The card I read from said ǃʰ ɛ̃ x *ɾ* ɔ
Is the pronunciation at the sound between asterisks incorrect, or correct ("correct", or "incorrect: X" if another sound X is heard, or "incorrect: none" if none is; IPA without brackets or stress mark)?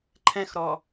correct